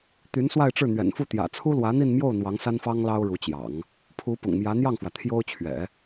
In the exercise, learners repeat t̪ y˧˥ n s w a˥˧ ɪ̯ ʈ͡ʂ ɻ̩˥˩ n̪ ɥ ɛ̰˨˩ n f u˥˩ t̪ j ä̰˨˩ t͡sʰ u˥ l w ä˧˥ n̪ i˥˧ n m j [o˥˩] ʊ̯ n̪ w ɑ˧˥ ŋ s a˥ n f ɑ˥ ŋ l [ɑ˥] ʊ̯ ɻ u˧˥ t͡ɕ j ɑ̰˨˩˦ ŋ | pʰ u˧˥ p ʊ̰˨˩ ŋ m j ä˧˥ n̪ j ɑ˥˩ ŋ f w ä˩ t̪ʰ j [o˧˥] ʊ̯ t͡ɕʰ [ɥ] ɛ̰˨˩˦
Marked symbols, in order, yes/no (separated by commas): yes, yes, no, yes